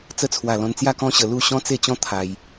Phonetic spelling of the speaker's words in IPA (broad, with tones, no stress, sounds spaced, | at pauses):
t͡s ə˧ t͡sʰ w a˨˩ l ɔ̃˧ n t͡s j a˥˧ k ɔ̃˦ ɕ ə˧ l u˥˧ ɕ ɔ̃˦ t͡s e˥˧ t͡ɕ ɔ̃˦ t̪ʰ a˧ j